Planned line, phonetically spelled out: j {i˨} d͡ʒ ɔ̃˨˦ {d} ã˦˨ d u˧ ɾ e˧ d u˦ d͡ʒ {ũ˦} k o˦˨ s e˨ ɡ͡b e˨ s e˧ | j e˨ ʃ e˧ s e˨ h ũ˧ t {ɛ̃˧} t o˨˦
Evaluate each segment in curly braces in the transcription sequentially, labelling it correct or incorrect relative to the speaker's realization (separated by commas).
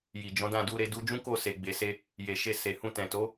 correct, correct, correct, incorrect